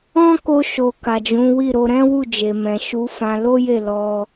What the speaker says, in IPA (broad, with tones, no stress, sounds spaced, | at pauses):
ɔ̃˦ k o˧ ʃ o˨ k a˨ d͡ʒ ũ˨˦ w i˦˨ ɾ o˨˦ ɾ ɛ̃˦ w u˦˨ d͡ʒ e˨ m ɛ̃˨ ʃ u˨˦ f ã˧ l o˦ j e˦˨ l ɔ˧